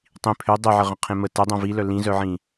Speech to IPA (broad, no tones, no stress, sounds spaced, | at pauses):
tˤ ĩ pʰ ø dˤ œ ʕ ə ʁ ə̃ qʰ ẽ m ə t ə dˤ œ̃ v i l œ l ĩ z œ ʕ ĩ